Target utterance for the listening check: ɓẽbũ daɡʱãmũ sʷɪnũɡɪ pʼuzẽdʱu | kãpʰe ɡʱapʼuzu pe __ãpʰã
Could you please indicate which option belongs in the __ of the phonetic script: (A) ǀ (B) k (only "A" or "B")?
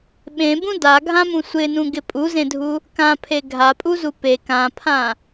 B